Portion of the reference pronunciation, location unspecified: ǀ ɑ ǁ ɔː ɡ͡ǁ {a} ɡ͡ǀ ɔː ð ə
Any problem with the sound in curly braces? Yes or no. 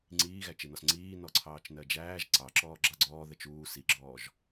yes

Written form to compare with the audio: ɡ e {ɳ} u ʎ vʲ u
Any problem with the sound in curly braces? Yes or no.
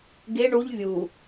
no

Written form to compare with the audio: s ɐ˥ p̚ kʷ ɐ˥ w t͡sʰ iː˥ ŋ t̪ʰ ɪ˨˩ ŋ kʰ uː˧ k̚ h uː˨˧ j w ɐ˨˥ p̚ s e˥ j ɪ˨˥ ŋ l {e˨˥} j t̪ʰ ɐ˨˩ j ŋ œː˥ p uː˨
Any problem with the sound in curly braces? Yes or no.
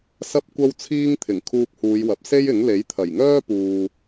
no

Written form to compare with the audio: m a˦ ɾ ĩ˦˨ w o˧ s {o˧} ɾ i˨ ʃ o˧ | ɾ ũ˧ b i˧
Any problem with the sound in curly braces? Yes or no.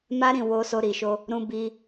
no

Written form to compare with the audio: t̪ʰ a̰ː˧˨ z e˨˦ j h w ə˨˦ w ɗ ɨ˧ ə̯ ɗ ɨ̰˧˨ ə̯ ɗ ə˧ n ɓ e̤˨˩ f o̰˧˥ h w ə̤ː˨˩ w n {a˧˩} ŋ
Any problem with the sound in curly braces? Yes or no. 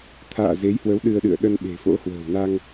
yes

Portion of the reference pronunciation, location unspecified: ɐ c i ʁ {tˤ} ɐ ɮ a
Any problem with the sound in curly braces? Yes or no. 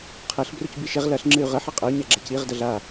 yes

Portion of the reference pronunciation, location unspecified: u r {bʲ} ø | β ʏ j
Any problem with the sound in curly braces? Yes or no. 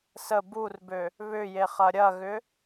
yes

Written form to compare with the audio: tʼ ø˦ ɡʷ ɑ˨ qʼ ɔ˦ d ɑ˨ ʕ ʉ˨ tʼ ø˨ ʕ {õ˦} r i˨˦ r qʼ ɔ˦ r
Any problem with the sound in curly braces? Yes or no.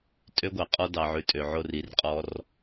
yes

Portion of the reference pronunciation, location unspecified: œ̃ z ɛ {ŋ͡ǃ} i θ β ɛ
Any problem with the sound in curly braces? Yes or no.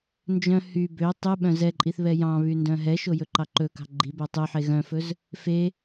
yes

